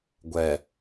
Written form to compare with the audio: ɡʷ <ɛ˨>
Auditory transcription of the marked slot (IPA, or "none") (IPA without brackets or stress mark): ɛ˨